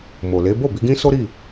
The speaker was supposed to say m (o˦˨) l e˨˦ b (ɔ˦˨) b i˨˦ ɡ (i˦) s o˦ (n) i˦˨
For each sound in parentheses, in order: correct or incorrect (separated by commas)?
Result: incorrect, incorrect, incorrect, incorrect